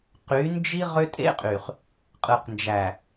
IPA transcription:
q y˨˦ n d͡ʒ i˦ ʁ ø˦ tʼ ḛ˦ qʼ y˨ χ | qʼ ɯ˨ q n d͡ʒ æ˨

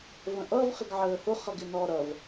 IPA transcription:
v ə̃ ʔ ʌ v χ ɪ ɡ ʕ əː h ʊ χ ʌ ɡ ɪ n ɔ ɾ ʌ v

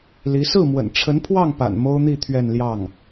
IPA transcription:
l i˧˥ s ɹ̩˥˩ m w ə̰˨˩ n ʈ͡ʂʰ ə˧˥ n pʰ w ɑ˥˩ ŋ p a̰˨˩ n m o˥ ʊ̯ n̪ i˥˧ t̪ʰ ɥ ɛ˥˧ n l j ɑ˥˩ ŋ

